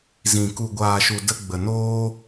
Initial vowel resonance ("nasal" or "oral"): nasal